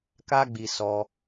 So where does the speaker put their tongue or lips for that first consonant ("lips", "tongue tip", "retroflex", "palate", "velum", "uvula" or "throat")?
velum